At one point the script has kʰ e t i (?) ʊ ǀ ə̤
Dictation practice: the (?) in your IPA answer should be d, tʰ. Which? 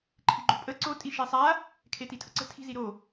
tʰ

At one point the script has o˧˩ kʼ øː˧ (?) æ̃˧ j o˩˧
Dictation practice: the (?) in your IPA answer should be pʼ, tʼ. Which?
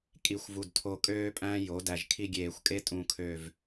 pʼ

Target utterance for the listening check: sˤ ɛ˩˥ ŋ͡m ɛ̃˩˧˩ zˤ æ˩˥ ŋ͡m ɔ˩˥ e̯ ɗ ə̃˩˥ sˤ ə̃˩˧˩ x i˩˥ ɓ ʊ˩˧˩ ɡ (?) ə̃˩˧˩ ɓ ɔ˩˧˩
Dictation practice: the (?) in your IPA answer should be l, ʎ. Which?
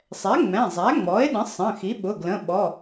l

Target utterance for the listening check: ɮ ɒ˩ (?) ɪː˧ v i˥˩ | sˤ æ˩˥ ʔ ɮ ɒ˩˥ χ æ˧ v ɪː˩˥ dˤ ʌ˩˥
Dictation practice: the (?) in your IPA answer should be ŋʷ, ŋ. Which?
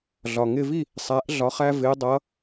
ŋ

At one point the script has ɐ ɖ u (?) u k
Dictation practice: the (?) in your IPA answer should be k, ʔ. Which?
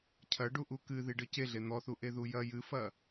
ʔ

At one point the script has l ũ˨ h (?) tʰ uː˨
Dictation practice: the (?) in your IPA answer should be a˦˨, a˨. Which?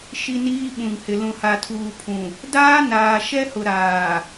a˨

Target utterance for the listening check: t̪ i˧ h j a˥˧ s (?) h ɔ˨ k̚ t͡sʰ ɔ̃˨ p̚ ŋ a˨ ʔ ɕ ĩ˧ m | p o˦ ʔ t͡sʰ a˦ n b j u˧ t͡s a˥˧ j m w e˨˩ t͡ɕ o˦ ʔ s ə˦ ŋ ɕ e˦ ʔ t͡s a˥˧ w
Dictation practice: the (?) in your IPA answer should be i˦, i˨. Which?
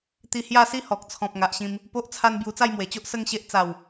i˦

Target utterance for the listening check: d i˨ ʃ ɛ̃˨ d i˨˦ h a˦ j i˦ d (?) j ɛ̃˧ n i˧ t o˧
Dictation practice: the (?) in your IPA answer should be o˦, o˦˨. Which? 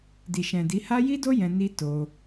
o˦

